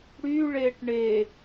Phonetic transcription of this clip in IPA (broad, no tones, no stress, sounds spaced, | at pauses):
ɽ y ɭ e ʈ ɳ e